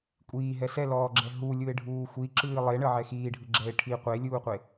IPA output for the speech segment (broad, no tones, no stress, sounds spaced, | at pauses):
kʷʼ iː ɦ ɛ s ɛ l ɔː ɡ͡ǁ ɛ ɦ u lʲ u e̯ ɖʱ uː xʷ i ǁ ɨː lˠ e ɳ ə ʕ ɛ x iː ɖʱ ɨ ɡ͡ǁ ɛ e̯ ʈʰ i qʷ e lʲ uː qʷ e